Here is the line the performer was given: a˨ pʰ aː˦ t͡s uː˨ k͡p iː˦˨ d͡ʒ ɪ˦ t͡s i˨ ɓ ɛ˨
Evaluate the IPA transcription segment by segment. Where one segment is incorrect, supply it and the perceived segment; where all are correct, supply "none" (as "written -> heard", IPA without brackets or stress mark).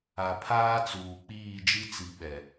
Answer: ɪ˦ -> i˦